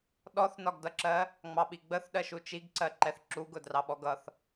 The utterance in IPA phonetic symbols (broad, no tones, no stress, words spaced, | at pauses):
ɗɔθnɒɡdʌǁɜ | ŋ͡mɑɓiɡ͡bəθ ɗɜʃut͡ʃiɡǀɜ ǃɛθǁuɡʊ drɑɓɔɡʌθ